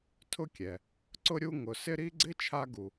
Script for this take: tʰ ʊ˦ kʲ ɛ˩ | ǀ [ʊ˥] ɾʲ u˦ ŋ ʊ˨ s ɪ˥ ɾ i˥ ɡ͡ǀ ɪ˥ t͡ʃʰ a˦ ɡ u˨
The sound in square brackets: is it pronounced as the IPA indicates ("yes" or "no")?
yes